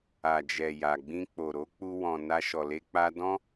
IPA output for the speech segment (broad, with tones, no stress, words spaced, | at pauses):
a˨d͡ʒɛ˨ ja˨ɡ͡bĩ˧k͡po˨ ɾo˨˦k͡pu˧ wɔ̃˨na˧ʃɔ˨le˧ k͡pa˧dɔ̃˦